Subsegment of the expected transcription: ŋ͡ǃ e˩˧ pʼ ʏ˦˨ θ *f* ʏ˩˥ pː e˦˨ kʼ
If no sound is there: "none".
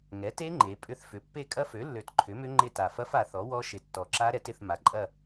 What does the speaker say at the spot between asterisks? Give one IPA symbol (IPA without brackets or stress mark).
f